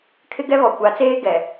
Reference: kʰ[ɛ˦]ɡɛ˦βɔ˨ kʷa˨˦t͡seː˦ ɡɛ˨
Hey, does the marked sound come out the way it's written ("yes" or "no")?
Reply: no